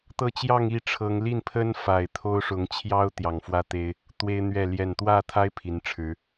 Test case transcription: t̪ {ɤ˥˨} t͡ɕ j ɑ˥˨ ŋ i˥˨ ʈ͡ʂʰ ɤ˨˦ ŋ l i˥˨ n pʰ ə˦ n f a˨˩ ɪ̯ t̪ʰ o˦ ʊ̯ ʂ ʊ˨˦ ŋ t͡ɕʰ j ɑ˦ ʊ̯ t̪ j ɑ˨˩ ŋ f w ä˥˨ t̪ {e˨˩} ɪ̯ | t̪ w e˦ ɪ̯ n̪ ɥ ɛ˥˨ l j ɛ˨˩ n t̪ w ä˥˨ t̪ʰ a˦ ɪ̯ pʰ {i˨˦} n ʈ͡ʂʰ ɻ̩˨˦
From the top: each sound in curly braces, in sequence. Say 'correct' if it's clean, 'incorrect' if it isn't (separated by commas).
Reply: correct, incorrect, correct